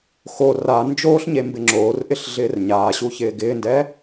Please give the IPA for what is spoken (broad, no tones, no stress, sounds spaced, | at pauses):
x o r a n d͡ʒ oː ɬ ɲ e m b ɪ ŋ͡ǁ oː r ʔ ɪ ɬ ɮ ɪː r ɲ aː ɕ u ç ɪː ɡ ɪː n d ɛ